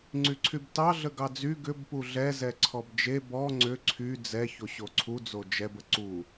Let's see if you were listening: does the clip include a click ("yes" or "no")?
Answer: yes